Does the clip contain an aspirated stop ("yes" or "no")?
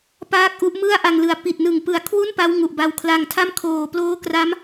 yes